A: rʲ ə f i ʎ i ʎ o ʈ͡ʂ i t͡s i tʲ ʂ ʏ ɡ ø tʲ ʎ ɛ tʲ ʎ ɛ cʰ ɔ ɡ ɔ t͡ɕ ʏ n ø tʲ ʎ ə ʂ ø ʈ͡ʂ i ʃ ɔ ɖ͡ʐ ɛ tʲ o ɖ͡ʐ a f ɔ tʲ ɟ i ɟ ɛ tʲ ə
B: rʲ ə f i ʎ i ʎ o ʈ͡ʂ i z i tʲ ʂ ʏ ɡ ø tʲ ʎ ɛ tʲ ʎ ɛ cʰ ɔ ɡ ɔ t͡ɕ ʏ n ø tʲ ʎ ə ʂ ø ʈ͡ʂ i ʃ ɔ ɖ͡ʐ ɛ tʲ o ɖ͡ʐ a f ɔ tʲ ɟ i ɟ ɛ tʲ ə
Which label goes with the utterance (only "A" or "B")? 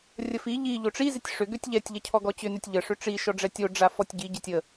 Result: B